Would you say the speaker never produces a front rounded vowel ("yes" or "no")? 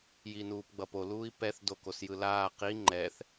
yes